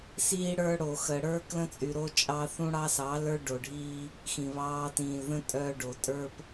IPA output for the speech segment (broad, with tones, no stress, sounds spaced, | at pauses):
s iː˦ ɽ ə˞˦ ɽ o˨ x ə˨ ɽ ə˞˦ k l ə̃˦ t͡sʼ y˨ ɾ o˦ t͡ʃʼ ɑ˦ θ ũ˦ ɽ ɑ˦ s ɑ˨˦ l ə˞˦ ɖ o˨ ɖʱ iː˦ | x ĩ˨ β ɑː˦ t ĩː˨ l ð ə̃˦ tʼ œː˦ ɖ o˨ tʼ ə˞˦ p